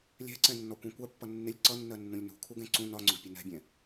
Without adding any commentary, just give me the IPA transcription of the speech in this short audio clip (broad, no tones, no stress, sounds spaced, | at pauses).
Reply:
lʲ ɛ̤ ǀ ɛ̃ nː ɔ kʷ ɛ̃ kʷ ɜ pː ʌ nː ɪ lʲ ǀ ʌ nː ɜ nː ũ lʲ n ṳ kʰ u ɡ ɛ̃ ǀ ũ n ɒ ŋ͡ǀ ʊ ɡ pʲ ə n ɛ̤ bʲ ɛ̃